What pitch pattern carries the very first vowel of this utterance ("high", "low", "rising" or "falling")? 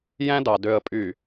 high